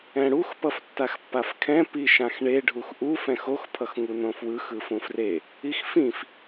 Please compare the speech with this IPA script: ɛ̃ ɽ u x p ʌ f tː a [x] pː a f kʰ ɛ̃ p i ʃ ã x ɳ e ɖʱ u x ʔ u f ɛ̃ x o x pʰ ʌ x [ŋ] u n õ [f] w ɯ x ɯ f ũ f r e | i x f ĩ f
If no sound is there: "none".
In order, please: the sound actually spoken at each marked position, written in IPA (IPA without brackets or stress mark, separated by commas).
x, ŋ, f